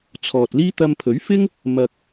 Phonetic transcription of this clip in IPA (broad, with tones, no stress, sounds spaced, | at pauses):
t͡sʰ ɔː˨ t̚ l iː˥ t̪ ɐ˧ m pʰ ɵ˨˥ ɥ f ɪ˥ ŋ | m ɐ˨ k̚